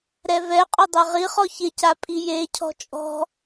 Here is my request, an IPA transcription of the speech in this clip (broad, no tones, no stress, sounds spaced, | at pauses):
ɾ ɛ v ɛ qʼ ʊ dˤ a ʁ i χ ɔ ç ɪ c a pʼ i j e cʰ ɔ̤ t͡ʃʼ ɔ̤